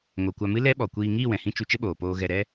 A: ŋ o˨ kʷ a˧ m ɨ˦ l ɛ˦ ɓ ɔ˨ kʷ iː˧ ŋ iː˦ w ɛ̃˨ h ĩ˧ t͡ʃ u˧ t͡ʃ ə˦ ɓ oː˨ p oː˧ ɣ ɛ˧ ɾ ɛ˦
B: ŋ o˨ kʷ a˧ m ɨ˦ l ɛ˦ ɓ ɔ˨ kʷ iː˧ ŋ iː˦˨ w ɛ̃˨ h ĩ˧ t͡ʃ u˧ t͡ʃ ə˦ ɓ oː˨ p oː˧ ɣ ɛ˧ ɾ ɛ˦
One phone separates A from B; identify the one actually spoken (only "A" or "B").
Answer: B